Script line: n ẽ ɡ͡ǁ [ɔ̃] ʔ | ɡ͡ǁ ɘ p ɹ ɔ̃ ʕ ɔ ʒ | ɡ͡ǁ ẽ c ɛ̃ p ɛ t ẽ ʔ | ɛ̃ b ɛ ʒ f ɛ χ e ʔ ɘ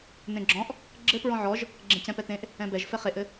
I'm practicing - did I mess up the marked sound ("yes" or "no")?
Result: no